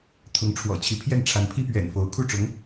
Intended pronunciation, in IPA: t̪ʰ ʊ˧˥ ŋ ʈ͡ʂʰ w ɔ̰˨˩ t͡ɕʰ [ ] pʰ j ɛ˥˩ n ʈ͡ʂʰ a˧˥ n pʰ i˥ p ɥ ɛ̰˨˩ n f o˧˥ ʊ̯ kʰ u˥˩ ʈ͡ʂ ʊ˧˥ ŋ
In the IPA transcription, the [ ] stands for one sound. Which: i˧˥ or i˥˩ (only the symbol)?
i˧˥